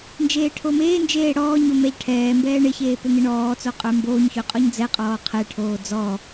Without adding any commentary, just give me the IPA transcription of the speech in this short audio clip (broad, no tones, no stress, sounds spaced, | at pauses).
n d͡ʒ eː ʈʰ o m eː n d͡ʒ eː ɽ ɔː ɲ o m ɛ ʎ ʈʰ ɛː m b ɛː ɳ ɪ ç eː p ø ŋ ɪ ɳ ɔː t͡s o qʼ ə˞ m b oː ɲ ç ø qʼ ɔ ɲ d͡z ɛ qʼ ɔː qʰ ɛ ʈʰ oː d͡z ɔ